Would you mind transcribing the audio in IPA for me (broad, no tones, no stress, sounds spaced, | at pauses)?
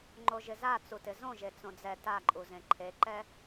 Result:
ŋ͡ǃ o ʒ ɪ z a t͡s u t ɪ z õ ʒ e t͡s õ d͡z ɛ t a ǃʼ u z ẽ ǃʰ e ǃ ɛ